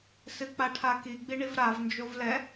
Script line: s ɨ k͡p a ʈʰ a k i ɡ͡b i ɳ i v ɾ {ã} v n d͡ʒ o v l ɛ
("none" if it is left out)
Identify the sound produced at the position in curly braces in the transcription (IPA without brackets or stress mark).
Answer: a